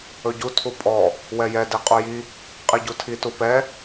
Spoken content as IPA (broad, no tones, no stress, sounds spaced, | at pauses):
ɵ ɟ u tʰ u pʼ ɔ | w ɛ j ɛ d i qʼ u j i | qʼ i ɟ u tʰ i t u p ɛ